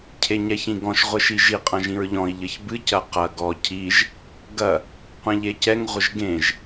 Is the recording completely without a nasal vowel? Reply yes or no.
no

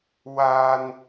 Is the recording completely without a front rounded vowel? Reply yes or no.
yes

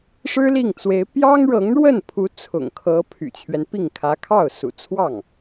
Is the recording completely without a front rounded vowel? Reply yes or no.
no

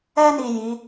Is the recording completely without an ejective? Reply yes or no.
yes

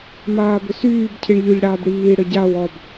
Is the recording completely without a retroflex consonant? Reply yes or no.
no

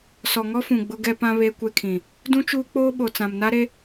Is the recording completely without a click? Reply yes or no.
yes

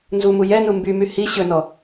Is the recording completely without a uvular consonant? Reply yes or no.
yes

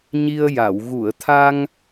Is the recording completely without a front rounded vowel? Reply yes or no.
yes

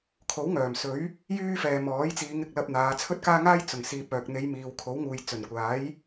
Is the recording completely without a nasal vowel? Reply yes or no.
yes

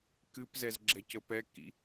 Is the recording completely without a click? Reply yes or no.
no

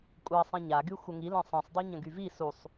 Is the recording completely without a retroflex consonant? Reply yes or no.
yes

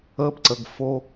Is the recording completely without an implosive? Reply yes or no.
yes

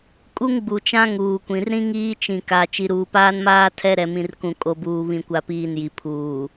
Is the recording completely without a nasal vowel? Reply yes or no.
no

